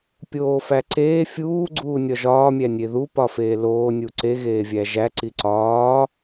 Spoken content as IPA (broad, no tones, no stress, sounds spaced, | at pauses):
pʲ oː f æ ǀ eː fʲ uː ɡ͡ǀ uː nʲ ɒ ʒ ɒː mʲ æ nʲ e ð u p ɒ f eː l oː nʲ u ǀ e ɣ eː vʲ æ ʒ æ ǀ i ǀ ɒː